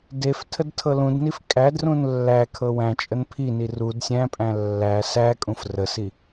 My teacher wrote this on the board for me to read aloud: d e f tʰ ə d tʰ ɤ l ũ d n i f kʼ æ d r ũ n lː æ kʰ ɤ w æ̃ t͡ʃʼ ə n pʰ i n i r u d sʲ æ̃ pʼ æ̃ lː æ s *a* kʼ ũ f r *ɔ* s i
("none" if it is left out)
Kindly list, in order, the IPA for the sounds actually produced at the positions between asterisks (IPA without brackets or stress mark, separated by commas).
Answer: æ, ə